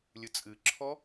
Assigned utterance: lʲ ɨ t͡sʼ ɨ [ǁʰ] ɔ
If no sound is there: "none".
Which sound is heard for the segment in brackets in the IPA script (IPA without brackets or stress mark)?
ǁʰ